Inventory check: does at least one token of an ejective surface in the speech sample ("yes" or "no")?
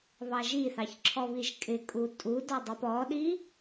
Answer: yes